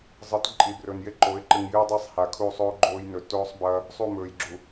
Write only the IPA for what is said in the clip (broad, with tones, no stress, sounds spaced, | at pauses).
zˤ ɨ˨˦ t ǃʼ i˨ b r ɵ˨ n j e˦ ǃ o˨˦ ɪ̯ ǃ ɨ˨ ŋ j ɨː˦ dˤ i˦˨ sˤ h a˨ kʰ u˦˨ sˤ oː˦ ɡ͡ǃ oː˦ j n ɵ˨ t oː˦ sˤ b ɐː˦ | sˤ u˦˨ m ɵː˨ j ɡ͡ǁ u˨